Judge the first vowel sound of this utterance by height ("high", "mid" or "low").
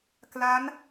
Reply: low